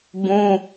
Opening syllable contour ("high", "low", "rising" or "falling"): high